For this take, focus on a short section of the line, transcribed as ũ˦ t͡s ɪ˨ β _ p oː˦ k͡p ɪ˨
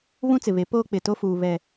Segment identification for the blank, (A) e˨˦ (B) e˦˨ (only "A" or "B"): A